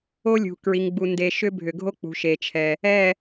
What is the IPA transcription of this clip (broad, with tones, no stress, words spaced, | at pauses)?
o˦lʲṳ˨kɹi˨ŋɡ͡bu˨ nde˨ ʃʏ˦bʱʏ˨ɡʱo˦ k͡pṳ˨ʃe˨t͡ʃʰɛ˨ | ɛ˦˨